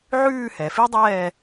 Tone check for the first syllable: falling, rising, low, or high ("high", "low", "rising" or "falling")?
falling